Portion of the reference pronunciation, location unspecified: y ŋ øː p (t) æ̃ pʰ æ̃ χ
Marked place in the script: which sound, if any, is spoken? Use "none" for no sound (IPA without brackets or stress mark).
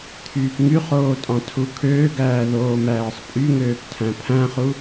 tʰ